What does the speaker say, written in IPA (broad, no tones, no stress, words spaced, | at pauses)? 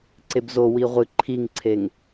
ǀebzo wiʁʷɨ ǃʰiŋǀʰeŋ